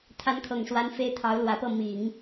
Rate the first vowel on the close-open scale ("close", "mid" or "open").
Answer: open